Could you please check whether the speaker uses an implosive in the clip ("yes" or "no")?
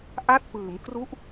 no